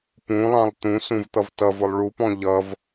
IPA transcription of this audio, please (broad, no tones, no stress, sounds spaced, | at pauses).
p ũ lˠ ɑ̃ lˠ t̪ ũ s ũ v t̪ ʌ v t ʌ v ʊ lˠ ɭ u p ɔ̃ ʎ ʌ v